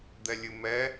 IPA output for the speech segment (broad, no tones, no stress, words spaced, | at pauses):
d̪ɛlʲɨmɛ